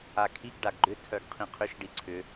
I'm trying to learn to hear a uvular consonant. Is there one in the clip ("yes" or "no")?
yes